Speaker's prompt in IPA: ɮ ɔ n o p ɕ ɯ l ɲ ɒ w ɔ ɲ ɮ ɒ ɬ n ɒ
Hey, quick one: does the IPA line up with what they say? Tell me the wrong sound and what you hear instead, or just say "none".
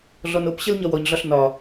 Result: ɯ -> ə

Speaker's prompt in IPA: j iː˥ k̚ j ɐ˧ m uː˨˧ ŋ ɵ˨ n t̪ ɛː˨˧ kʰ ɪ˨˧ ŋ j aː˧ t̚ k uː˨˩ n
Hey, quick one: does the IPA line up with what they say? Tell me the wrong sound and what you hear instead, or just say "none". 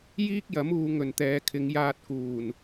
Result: ɐ˧ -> ɐ˨˥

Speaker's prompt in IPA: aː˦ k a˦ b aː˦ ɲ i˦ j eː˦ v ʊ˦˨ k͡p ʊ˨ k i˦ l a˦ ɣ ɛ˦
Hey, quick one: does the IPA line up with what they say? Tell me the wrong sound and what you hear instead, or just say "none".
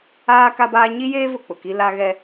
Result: none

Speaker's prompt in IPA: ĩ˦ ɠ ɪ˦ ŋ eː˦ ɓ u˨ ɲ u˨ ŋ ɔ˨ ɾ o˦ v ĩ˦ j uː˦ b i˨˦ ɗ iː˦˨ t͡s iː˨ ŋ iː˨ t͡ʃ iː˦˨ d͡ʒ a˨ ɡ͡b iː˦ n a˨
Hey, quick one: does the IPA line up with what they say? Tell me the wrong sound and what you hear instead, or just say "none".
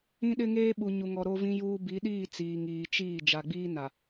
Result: ɠ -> ɗ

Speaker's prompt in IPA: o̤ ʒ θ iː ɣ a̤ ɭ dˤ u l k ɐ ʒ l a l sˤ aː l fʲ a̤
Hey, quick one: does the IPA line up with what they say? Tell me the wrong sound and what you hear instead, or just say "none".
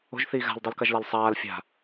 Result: ɭ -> l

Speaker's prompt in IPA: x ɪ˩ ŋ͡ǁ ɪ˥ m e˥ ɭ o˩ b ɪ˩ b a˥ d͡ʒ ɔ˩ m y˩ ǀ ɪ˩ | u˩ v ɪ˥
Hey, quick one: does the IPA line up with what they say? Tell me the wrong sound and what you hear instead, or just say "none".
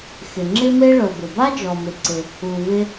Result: y˩ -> ɪ˩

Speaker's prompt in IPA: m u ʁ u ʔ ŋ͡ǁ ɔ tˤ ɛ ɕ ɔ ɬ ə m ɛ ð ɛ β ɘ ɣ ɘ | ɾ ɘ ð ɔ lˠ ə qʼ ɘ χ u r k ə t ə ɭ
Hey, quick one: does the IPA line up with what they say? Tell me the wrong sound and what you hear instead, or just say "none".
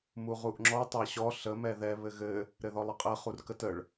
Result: none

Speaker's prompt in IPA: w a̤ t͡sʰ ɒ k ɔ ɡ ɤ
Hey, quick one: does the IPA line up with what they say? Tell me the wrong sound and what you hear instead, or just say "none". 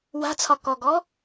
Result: ɤ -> ɔ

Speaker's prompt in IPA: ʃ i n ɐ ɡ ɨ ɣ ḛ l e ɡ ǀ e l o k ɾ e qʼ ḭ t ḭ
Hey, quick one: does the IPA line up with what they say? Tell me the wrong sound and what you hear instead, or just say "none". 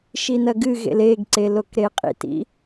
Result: none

